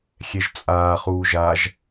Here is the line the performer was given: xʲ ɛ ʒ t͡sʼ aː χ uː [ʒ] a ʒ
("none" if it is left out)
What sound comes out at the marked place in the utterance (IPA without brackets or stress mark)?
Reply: ʒ